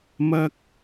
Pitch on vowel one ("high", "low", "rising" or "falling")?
high